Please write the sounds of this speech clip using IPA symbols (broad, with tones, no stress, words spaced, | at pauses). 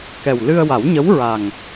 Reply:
kɛ˨˩wlɨ˧ə̯ wa˨˩˦wɲə˧˥wɹa˨˩ŋ